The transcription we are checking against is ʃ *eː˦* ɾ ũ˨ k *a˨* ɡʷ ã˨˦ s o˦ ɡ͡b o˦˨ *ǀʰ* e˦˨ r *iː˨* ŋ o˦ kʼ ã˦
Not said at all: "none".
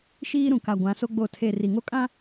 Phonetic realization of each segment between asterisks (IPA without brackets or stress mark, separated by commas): iː˦, a˨, tʰ, i˨